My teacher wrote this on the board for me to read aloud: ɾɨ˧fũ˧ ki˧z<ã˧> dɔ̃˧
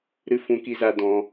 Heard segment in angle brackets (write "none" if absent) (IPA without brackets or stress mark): a˧